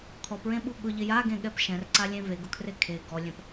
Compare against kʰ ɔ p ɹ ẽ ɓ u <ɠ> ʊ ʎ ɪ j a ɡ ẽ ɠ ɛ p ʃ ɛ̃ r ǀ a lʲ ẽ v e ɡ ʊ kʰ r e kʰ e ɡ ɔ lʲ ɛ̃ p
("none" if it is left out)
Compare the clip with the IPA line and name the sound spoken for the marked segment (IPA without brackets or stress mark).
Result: ɠ